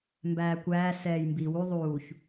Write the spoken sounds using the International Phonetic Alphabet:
m b æː kʷ æː s ɛː j m b iː w u ðˤ uː ç

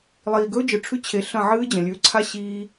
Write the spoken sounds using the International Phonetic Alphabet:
lˠ iː˨ ɡ ɵː˦ d͡ʒ ɨ˨ ʈ͡ʂʰ ʉ˦ t͡ɕʰ e˨ ɬ ɐ̃˦˨ ʕ ɨː˦ d͡ʑ ɐ̃˨ lʲ ʉː˨ ǀʰ a˦ ɕ iː˦

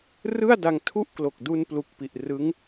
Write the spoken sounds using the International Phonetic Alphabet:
r ɯ˥˩ a̯ d a˧ ŋ tʰ u˥˩ ʔ k l o˨˩ k̚ d u˧ n p l u˨˩ k̚ p i˨˩ ʔ r ɯ˦˥ ŋ

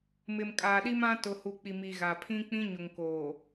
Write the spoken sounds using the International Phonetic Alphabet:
m ɪ˨ m kʼ aː˨ ɗ i˦ m ã˦ t ʊ˨ h u˨ k͡p i˨ m i˨ ɣ a˨ pʰ ĩ˦ k͡p ĩ˦ ɲ ʊ˨ ŋ k oː˨

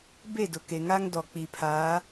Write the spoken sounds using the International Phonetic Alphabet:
b e˦˨ d ʊ˨ k e˨ ŋ a˦ ŋ d ɔ˨ k͡p i˨ pʰ aː˨˦

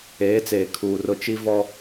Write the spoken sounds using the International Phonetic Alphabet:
eː˨˦ t͡s eː˨ kʰ uː˨ r ʊ˦˨ t͡ʃ i˦ v ɔ˦

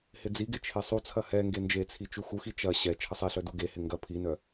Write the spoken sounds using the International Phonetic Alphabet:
h ɪ d͡z i ɡ ɪ t͡ʃʰ e sˤ u t͡sʰ ɐ h ɛ ŋ ɡ e n d͡ʒ e t͡sʰ i t͡ʃ u x u x i t͡ʃ ɐ ɕ ɛ t͡ʃʰ ə sˤ i ɬ œ d u ɡ e h ɪ ŋ ɡ ɐ pʰ i n œ

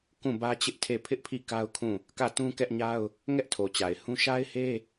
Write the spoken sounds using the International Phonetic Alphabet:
k ũ˦˨ b ä˦ t͡ɕ ɪ˦ ʔ tʰ e˦˨ pʰ ɪ˦ ʔ pʰ i˦˨ k a˦ ʊ̯ kʰ ũ˦˨ | k ä˦˨ t ũ˦ k ɛ˦ ʔ ɲ a˦ ʊ̯ | ŋ ɛ˦ ʔ tʰ o˨ t͡ɕ a˨ ɪ̯ h ũ˦ ʃ a˦ ɪ̯ h e˦

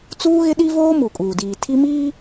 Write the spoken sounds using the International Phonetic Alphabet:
t͡s uː˦ ɣ ɪ˦ ɗ i˦ v oː˦ m u˨ kʼ uː˨ d iː˨ tʰ i˦ m iː˦

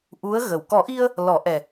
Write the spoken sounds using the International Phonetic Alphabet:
ʔ u˧˥ ə̯ ɣ ə˨˩ w k ɔ˨˩˦ ʔ i˧ ə̯ | l ɔ˨˩˦ ʔ ɛ˨˩

